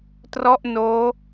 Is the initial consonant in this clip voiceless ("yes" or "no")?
yes